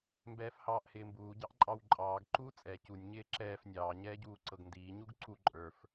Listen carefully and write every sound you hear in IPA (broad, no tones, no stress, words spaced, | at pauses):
mbɛːfhɑːʔhɪːmbuː ɟɑʔǃʼɑwǃʼɑːɡ ǃuːt͡sʼɛ cunʲ ɲɪːǁɛːf nʲɑː ɲɛːɟuːǀɤɡndiː ɲuɡǀu ǃʼə˞f